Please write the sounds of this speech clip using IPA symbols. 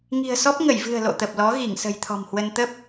ŋ i̤˨˩ ə̯ s ɔ˦˥ p̚ ŋ ə˧˩ j v ɨ̤˨˩ ə̯ l o̰˧˨ t̪ ə˨˩ p̚ l ɔ˨˦ ɣ i˧˩ ŋ s ə̤˨˩ j t̪ʰ ɔ̤˨˩ m h w ə˧ n t̪ ə˦˥ p̚

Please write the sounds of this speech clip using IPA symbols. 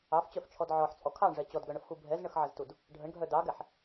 ɑ f t͡ɕ œ f t͡ʃʰ ɔ d ʕ ɔ ħ t͡sʼ ɔ kʰ ɑ ɳ ʐ ɛ t͡ɕ ɔ d ɡ œ ɳ ə f x u bʱ ɛ z ɳ ə x ʕ ə z t u d | ɖʱ ə ɳ ɡʱ œ d ɑ ɡ ɛ ħ

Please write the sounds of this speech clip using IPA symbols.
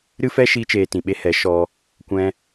ɾ ɨ˦ f ɛ˦ ʃ iː˦ t͡ʃ eː˧ t ĩ˨ ɓ e˧ h ɛ˨˦ ʃ ɔ˧ | kʷ ɛ̃˧

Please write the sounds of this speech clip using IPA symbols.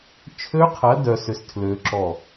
t͡ʃʰ ø˦˥ qʰ ɐ˨˥ d œ˦˥ s ʏ˦˥ s tʰ l ø˦˥ ǁ ɔ˥˨

